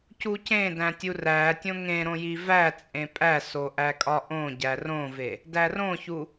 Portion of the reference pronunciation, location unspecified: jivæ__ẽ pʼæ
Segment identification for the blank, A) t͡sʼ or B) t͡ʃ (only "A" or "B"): A